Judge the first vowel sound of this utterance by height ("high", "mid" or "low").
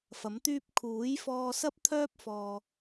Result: low